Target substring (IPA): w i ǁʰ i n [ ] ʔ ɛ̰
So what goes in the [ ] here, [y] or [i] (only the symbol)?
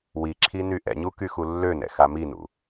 y